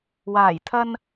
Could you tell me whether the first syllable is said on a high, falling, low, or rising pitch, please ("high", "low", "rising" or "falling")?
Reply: low